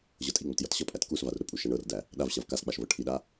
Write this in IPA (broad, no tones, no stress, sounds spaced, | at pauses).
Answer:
ʑ ɤ tʼ i ŋ͡m ə t j ʌ t ɕ ʌ pʼ æ t k u s v a r ɾ ʊ pʼ u ʃ æ ɳ ɤ r d æ | ɗ a v ɕ a v k a s k͡p a ʃ v ɤ ʈʰ i ɗ a